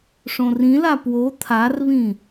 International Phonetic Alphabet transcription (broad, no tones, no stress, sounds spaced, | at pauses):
ʂ õ r ĩ l a p w o t̪ʰ a r β ĩ